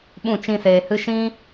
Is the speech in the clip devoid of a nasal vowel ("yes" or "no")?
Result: no